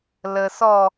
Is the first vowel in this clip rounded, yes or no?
no